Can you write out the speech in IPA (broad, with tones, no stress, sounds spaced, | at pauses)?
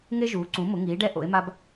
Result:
ŋ e˦ ʒ uː˩˥ ǀ ũ˩˥ m ʊ˩˥ ŋ iː˩˥ ɖ ɛ˦ ʔ o̰˩˥ e̯ m a˦ b